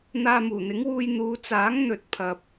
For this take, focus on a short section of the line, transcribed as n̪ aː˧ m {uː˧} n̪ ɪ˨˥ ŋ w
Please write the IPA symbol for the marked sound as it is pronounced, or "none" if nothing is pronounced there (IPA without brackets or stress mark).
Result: uː˨˩